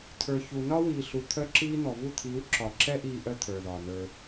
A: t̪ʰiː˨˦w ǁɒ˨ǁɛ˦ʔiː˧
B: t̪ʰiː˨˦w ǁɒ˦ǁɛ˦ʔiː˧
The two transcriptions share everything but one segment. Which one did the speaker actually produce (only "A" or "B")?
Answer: A